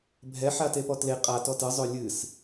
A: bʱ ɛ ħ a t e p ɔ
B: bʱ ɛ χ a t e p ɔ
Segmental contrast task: A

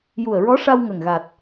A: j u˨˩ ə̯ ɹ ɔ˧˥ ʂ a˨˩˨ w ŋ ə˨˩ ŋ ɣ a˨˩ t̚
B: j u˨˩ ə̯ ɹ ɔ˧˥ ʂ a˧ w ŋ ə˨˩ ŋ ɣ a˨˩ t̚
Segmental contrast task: B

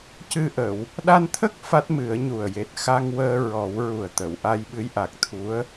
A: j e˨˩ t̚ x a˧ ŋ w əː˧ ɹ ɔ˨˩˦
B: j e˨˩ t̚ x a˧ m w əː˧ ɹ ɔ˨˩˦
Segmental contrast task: A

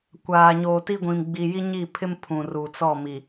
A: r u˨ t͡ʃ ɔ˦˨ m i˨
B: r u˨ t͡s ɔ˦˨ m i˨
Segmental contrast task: B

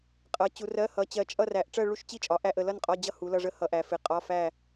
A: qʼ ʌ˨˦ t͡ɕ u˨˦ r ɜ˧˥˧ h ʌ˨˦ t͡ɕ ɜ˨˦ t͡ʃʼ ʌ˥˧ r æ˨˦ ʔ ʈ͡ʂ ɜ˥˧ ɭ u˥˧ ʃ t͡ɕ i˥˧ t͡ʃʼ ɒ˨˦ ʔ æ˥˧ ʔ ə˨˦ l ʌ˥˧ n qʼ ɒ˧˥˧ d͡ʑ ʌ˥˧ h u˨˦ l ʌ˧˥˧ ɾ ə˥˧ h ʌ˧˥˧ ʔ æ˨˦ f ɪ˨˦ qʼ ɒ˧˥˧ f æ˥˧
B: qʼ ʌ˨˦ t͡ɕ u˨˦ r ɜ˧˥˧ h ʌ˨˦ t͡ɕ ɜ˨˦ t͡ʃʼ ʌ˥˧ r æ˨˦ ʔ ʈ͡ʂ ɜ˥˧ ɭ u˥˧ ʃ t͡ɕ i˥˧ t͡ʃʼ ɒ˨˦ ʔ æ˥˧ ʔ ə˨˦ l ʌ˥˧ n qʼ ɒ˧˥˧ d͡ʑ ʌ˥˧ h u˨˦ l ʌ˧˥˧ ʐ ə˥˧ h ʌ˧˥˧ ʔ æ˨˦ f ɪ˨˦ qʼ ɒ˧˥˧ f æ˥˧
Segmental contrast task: B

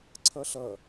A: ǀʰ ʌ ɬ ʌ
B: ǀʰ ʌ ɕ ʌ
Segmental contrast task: A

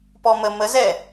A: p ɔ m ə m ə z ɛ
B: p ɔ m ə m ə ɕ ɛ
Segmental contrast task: A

